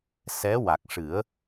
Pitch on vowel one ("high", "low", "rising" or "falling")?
rising